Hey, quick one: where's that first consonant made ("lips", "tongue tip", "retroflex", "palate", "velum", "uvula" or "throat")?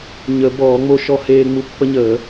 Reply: palate